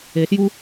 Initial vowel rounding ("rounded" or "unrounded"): unrounded